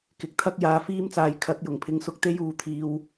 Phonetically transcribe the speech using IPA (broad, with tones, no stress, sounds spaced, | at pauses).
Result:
k ɪ˨˥ k̚ t̪ʰ ɐ˥ k̚ j aː˧ f iː˥ m t͡s aː˧ j kʰ ɐ˨˥ t̚ j ʊ˨˩ ŋ pʰ ɪ˨˥ ŋ s ʊ˧ k̚ t̪ e˥ j uː˨˧ t̪ʰ iː˧ w